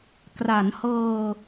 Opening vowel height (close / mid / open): open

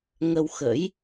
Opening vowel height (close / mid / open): mid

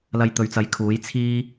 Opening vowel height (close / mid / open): open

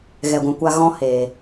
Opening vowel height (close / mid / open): mid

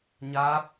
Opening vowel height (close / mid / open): open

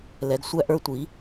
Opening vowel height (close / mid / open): mid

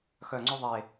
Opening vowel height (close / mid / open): mid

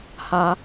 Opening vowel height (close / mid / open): open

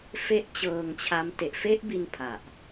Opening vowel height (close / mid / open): mid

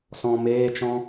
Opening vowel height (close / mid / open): mid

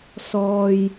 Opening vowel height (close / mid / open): mid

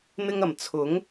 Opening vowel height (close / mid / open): close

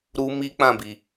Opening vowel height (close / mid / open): close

